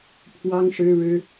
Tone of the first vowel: high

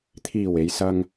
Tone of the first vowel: low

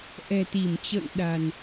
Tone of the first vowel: low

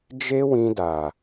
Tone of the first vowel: high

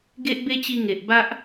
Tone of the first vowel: high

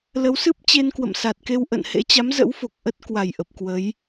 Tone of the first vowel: rising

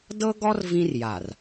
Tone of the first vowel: high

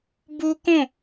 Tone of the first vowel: high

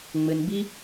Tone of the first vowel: low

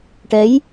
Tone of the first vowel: rising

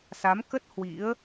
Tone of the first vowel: rising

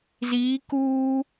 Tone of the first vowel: rising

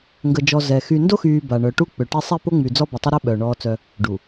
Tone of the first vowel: low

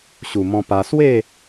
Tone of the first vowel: low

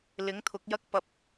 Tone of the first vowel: rising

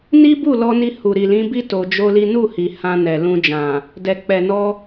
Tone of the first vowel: high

